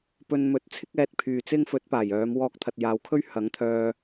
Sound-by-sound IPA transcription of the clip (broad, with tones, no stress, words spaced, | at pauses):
pɵ˧nmɵ˨˥t̚ t͡sʰɪ˥k̚ɛː˨˥t̚pʰyː˨t͡sɪ˥ŋ fɵ˨˥t̚paː˨˩jœː˨˧m wɔː˧k̚t̪ʰɐ˨t̚jaː˨˧wkʰɵ˥ɥ hɐ˨˥ŋt̪ʰœː˧